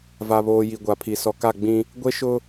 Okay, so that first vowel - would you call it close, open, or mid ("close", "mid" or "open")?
open